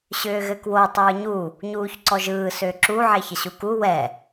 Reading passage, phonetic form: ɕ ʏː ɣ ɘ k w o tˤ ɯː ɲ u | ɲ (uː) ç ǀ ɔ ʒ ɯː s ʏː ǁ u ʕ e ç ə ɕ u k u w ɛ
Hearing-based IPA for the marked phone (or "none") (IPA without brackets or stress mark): uː